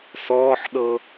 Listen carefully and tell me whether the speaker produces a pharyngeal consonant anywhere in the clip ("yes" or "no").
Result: yes